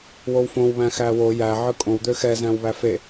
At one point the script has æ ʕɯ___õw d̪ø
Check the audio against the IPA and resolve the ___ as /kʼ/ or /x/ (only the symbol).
kʼ